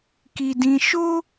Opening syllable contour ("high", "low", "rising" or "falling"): high